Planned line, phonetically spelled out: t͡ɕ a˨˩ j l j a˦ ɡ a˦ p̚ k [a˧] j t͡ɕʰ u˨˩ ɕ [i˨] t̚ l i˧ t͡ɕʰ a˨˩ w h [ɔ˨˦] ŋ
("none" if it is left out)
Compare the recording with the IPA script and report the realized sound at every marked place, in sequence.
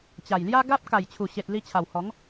a˨˩, e˨, ɔ˨˦

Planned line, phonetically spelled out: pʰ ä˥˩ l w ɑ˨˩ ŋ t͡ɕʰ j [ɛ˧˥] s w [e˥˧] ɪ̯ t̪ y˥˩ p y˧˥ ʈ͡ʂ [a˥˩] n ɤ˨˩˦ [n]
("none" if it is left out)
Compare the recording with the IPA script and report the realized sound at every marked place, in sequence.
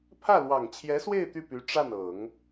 ɛ˧˥, e˥˧, a˥˩, ŋ

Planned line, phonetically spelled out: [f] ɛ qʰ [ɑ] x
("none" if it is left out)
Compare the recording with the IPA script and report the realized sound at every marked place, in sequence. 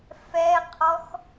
f, ɔ

